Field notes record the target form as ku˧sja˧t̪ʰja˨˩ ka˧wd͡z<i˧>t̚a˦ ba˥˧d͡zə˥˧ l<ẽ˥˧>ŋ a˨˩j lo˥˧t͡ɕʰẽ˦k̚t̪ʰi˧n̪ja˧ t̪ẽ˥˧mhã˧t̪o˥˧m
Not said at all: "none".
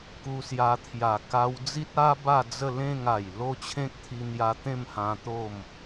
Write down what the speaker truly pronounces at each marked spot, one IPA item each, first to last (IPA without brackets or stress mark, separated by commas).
i˦, ẽ˥˧